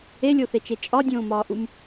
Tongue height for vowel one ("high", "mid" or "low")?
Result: mid